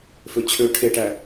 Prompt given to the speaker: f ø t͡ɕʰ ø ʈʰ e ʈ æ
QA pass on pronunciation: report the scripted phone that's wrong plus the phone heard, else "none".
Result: none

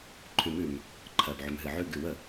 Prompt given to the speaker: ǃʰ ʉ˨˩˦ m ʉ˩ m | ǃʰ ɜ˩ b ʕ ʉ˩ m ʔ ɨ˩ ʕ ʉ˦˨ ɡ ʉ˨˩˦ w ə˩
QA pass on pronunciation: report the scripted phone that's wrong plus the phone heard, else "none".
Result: ʔ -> ɦ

